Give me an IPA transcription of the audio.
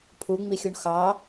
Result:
pʰ u ŋ͡m i xʲ u ɳ x ɑː

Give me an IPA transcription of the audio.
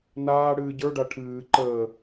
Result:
n aː ɽ ɨː ɟ ə˞ ɖ a ʈʰ ɨː ǃ əː

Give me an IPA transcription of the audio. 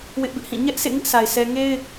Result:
w ɪ˦ ʔ b ɪ˦ ʔ h ĩ˦˨ ɲ ɛ˦ ʔ s ḛ˦˨ ŋ ɪ˦ ʔ sʰ a˨ ɪ̯ s ɛ˦ ŋ e˦ ɪ̯

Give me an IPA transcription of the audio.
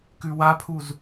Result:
k ʉ w a pʰ u z

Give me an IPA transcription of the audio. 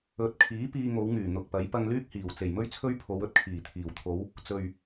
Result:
ɵ˨˥ t̚ kʰ iː˨˥ p iː˧ ŋ o˨˧ w ŋ yː˨˩ n̪ ʊ˨ k̚ p ɐ˨˥ j p ɐ˧ ŋ l yː˥ k̚ h iː˨˩ w t͡s e˨˩ j m ɵ˥ ɥ t͡sʰ ɵ˥ ɥ pʰ o˨˧ w ɵ˧ t̚ kʰ iː˨˩ t̪ʰ iː˨˩ w t̪ʰ o˨˧ w | t͡s ɵ˨ ɥ

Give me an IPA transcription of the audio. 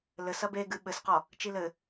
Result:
l ɘ s ɐ b e ɡ ɨ ɓ ɘ s q ɔ | t͡ʃ i l ɘ

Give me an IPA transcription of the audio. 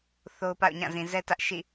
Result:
θ o˦ ʊ̯ p a̰˦˨ ʊ̯ ɲ ã˦˨ z ĩ˨ z ɛ˦ t ä˦ ʔ ʃ ḭ˦˨

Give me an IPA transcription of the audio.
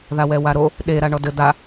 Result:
ð a w ɛ w a ɾ o | ɗ e ɾ a ɳ ɔ d ɘ d̪ a

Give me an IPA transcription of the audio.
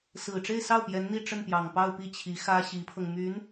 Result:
s ɹ̩˨˩ ʈ͡ʂ e˥˧ ɪ̯ s ɑ˥˩ ʊ̯ p j ɛ˧˥ n n̪ i˥˧ ʈ͡ʂ ə˥˩ n p j ɑ˨˩ ŋ p ɑ˥˧ ʊ̯ p i˥˩ t͡ɕʰ i˧˥ x ä˥ ɕ i˧˥ pʰ ɤ˧ ŋ m y˧˥ n

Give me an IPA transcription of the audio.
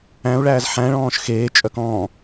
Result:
æ̃ u̯ ɭ æː z ħ æ̃ ɭ ɔ̃ː ʃ x eː t͡ʃʼ œ k ɔ̃

